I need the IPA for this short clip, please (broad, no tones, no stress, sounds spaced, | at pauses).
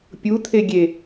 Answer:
pʲ u t̪ʰ e ɡʲ e